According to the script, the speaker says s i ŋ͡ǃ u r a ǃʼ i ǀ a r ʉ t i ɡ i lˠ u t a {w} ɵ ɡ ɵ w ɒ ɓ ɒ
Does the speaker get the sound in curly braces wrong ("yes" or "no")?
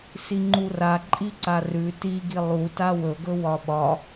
no